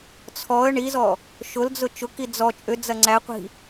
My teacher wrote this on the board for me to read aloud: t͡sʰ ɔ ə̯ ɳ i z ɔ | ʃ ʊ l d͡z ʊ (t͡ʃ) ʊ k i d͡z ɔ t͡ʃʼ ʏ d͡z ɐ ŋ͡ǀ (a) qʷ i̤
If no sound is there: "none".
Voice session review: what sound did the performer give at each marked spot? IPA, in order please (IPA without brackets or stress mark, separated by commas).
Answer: t͡ʃ, æ